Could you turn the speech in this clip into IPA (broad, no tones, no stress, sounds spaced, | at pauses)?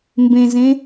m b ẽ z ẽ